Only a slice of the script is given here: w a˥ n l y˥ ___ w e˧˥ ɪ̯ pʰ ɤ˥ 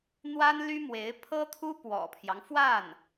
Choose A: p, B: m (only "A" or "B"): B